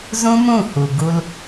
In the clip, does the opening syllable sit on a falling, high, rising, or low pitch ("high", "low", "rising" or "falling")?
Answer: high